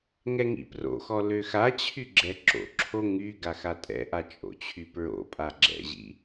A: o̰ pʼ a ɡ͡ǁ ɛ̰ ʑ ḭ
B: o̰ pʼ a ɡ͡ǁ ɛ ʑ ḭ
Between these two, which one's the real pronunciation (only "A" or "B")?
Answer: A